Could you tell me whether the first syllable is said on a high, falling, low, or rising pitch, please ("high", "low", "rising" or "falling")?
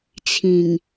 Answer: low